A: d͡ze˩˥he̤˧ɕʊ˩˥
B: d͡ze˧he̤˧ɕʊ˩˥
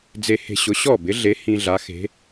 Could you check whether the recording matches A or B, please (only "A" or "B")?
B